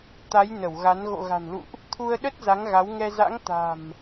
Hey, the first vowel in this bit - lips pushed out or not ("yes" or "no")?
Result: no